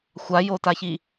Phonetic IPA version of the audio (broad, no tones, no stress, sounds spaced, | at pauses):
xʷ a j o t a ç i